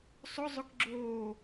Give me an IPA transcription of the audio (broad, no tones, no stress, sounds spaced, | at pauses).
sˤ ʊ zˤ ʊ k ɡ͡ǁ oː